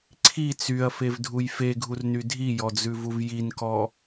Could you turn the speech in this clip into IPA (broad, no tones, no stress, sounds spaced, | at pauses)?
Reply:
ǀʰ i t͡s y ɐ̯ f e v dʱ u j f e ɡʱ u r n y dʱ i j ɔ d͡z ʉ v u v j i n k ɔ